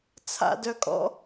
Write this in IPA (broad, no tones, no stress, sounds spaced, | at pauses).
t͡sʰ a̰ d œ kʼ ɔ̰